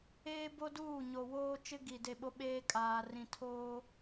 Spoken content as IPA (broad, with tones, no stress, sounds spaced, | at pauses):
eː˦ b o˦ d uː˦˨ ɲ o˨ w oː˦ t͡ʃ ɪ˦ ɡ i˨ d e˦˨ ɓ o˦ ɓ eː˦ kʼ aː˨ r ĩ˨ tʰ oː˦